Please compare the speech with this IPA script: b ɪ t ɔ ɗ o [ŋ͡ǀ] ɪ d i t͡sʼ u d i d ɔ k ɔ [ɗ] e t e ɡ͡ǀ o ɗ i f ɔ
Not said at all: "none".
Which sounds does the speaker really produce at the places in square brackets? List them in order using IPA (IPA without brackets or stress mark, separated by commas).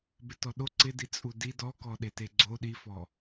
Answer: ǀ, ɗ